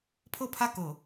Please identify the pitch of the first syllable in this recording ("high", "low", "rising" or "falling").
falling